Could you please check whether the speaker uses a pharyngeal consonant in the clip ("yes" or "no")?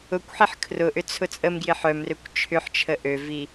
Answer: yes